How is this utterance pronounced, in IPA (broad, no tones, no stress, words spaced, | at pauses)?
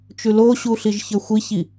t͡ʃʉloɕu ɬiʒçə˞xʷiçi